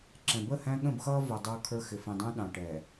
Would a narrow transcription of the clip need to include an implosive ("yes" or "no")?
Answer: yes